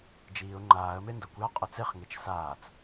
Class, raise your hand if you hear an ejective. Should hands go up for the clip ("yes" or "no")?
yes